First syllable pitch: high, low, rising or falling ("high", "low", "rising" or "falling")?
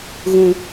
high